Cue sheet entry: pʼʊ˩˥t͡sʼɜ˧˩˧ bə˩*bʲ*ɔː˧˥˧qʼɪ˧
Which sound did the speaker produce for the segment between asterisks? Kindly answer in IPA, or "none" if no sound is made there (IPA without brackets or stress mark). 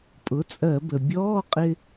bʲ